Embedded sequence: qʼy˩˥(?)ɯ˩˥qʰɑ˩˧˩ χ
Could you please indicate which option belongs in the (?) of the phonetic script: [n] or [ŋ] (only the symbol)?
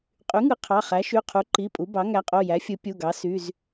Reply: ŋ